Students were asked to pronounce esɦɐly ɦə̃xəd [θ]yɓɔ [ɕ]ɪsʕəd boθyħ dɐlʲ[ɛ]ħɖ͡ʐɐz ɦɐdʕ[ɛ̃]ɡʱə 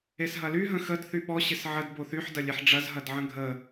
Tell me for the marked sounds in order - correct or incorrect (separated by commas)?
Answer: correct, correct, incorrect, incorrect